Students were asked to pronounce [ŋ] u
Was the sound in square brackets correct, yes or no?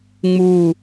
no